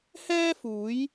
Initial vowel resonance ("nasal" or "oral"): oral